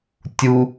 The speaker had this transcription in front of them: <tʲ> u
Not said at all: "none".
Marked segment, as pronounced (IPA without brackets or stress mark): tʲ